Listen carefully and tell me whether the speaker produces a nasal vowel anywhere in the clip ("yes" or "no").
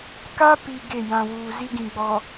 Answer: yes